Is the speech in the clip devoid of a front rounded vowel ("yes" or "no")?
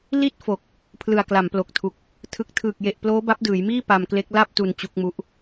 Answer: yes